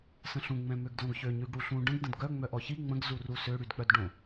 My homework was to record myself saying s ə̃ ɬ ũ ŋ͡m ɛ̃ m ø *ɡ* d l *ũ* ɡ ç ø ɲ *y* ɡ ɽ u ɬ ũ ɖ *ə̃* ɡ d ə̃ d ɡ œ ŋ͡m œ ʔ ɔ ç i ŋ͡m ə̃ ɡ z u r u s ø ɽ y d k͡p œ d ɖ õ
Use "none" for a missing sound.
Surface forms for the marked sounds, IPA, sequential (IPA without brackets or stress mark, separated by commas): ɡ, õ, y, ə̃